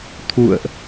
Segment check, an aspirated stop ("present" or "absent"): present